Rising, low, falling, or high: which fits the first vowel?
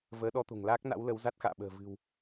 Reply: rising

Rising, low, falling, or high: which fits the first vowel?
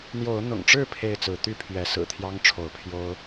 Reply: rising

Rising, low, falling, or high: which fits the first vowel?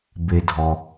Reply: low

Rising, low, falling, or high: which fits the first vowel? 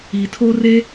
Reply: low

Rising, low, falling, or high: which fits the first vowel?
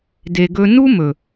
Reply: low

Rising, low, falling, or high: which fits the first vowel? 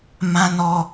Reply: high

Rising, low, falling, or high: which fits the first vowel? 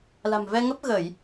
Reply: low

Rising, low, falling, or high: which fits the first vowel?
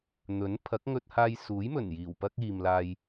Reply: rising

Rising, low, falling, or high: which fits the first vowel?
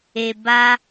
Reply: low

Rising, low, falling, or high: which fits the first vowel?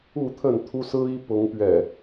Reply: falling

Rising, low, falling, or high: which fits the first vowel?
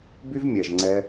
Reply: high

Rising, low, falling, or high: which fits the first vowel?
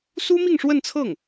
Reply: high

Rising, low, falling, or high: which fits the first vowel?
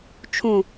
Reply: falling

